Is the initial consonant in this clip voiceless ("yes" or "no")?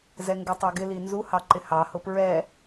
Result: no